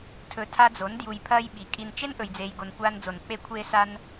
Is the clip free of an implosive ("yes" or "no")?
no